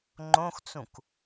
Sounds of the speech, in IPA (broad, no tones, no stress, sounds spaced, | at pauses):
ŋ͡ǃ õ x t͡s ũ k